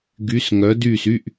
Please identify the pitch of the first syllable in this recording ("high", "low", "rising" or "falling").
rising